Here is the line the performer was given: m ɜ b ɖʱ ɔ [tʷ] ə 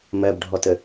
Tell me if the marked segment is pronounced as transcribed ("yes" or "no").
no